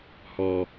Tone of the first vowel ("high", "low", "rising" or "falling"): low